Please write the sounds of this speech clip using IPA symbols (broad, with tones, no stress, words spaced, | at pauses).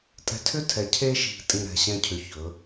tʼɛ̤˧tʰʏ˦tʰɛ˨˦ cʰe˧ʃi̤˨tʼĩ˨ ɾɛ̤˨ɕɛ̃˧cʰʏ˨ çɵ˨˦